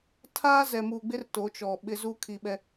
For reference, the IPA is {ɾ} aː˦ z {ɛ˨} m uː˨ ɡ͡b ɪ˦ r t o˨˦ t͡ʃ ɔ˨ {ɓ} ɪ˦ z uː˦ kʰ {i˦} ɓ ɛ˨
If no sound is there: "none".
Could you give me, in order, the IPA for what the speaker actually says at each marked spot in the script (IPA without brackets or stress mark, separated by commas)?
tʰ, ɛ˨, ɓ, i˨